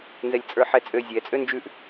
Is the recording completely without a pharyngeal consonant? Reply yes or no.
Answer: no